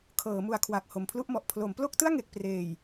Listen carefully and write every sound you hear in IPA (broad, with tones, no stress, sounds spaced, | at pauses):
kʰ ɤː˩˦ m u˨˩ a̯ kʰ w a˨˩ k̚ h o˨˩ m pʰ l u˥˩ ʔ m ɔ˨˩ ʔ pʰ l o˩˦ m p l o˥˩ k̚ t ɯ˥˩ a̯ ŋ e˨˩ k̚ p r eː˨˩ j